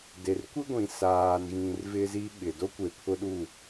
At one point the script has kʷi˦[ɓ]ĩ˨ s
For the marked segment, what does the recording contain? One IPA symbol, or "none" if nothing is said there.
ɡʷ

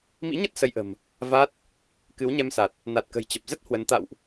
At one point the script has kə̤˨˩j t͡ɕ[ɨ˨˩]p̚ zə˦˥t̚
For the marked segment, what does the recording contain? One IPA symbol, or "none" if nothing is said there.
ə˨˩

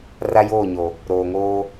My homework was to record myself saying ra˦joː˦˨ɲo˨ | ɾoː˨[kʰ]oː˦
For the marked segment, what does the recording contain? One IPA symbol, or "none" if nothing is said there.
ŋ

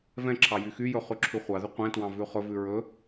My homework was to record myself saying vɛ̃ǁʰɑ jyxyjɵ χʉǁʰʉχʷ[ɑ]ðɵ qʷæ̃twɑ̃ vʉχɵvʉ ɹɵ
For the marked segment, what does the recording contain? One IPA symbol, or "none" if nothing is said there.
ɑ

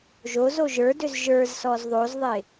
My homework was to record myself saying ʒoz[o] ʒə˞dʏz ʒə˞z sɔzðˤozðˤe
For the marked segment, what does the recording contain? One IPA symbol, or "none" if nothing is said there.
o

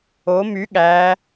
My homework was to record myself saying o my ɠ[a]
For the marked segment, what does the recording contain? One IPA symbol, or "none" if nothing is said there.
æ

